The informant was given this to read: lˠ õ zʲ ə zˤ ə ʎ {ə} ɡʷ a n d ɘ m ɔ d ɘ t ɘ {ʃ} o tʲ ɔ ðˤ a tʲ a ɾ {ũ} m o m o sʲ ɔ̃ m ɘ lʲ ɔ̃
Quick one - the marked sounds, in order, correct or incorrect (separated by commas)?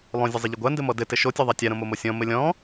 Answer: correct, correct, incorrect